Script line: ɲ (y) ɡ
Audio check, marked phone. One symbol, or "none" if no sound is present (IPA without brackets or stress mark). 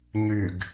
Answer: y